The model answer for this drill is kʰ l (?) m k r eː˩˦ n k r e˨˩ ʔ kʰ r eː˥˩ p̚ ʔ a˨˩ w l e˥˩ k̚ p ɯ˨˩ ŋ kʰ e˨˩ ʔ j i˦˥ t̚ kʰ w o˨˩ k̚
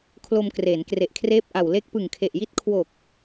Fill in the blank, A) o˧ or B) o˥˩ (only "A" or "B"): A